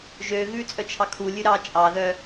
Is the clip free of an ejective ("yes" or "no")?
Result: no